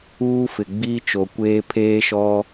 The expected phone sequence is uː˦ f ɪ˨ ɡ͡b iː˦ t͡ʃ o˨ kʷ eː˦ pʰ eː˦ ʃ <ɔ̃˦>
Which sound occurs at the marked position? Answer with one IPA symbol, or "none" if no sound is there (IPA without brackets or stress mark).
ɔ˦